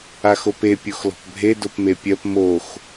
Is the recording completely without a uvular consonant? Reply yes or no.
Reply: yes